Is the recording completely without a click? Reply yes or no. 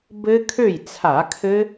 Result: yes